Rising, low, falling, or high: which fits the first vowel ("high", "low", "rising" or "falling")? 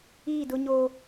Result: falling